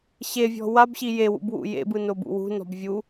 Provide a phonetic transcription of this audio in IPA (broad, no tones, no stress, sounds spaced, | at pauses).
ɕ e vʲ ɔ̤ w a b ɕ i j e w ṵ b w ṵ j ḛ b ɯ n o b ṵ w ṳ n ɔ̤ b vʲ u